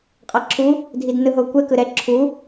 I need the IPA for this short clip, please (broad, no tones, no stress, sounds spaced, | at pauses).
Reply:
qʼ a ǁʰ u | dʱ i d n ɯ ɦ o kʷ ɛ k ɯ ɾ ɛ ǁʰ u